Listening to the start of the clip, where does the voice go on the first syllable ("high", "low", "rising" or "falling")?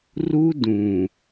high